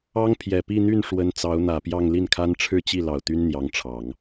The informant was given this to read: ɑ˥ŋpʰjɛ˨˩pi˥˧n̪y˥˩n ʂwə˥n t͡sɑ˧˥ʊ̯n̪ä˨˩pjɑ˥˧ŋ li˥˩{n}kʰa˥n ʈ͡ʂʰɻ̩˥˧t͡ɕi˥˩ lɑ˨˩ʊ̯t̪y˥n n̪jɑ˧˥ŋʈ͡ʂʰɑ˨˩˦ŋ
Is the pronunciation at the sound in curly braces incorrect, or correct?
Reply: correct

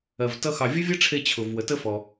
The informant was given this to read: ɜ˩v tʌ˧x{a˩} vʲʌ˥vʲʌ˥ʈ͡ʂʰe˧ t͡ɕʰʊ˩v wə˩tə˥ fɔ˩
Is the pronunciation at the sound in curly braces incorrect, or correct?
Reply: incorrect: ɑ˩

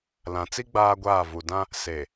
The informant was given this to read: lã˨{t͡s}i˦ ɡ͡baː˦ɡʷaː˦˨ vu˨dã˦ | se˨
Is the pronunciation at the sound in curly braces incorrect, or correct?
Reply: correct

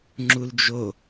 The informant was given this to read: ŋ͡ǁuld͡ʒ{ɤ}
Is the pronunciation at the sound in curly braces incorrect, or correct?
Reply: incorrect: o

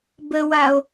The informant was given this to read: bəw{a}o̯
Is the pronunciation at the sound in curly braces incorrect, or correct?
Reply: correct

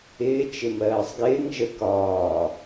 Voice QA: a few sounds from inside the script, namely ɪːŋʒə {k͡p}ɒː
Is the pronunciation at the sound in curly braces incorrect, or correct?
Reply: incorrect: k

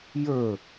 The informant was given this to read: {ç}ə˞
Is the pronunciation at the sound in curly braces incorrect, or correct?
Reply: incorrect: j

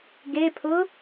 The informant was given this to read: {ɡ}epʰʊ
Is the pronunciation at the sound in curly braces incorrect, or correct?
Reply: correct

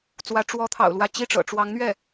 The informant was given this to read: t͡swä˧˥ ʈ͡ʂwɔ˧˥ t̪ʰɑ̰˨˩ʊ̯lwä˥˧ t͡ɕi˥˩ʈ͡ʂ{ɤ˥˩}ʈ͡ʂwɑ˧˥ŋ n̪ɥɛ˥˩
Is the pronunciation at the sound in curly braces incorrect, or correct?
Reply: incorrect: ɤ̰˨˩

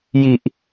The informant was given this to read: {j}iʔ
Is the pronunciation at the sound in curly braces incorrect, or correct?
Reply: correct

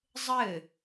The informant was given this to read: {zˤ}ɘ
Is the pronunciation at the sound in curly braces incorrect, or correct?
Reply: correct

